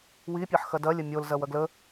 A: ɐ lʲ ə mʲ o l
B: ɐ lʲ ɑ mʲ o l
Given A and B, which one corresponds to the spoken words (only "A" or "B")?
A